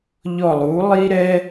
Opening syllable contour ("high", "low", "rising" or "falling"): falling